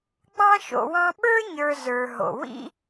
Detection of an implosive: present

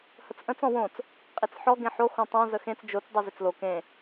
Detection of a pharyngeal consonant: present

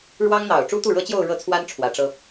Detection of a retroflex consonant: present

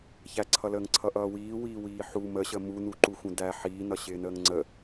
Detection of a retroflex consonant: absent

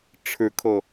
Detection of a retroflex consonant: present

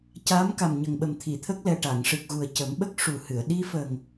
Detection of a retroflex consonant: present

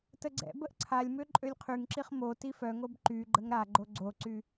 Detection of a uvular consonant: present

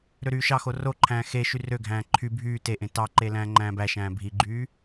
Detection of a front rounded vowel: present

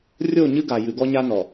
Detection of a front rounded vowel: absent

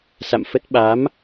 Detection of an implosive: present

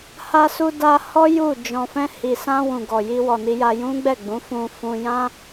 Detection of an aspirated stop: absent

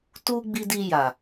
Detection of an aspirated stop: absent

